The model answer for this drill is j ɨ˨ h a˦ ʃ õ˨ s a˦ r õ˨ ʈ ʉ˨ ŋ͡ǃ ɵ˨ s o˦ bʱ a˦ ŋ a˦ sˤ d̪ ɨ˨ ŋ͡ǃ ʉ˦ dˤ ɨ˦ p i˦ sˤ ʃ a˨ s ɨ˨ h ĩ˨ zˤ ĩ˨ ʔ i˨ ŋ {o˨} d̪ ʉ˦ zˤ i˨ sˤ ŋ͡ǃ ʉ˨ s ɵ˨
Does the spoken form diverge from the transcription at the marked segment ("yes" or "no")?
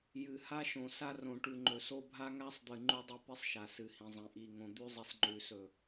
yes